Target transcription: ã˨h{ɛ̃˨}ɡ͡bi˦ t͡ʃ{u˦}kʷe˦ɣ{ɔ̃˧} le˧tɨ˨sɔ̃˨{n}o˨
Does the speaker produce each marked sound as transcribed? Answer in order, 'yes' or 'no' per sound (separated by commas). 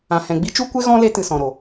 yes, yes, no, no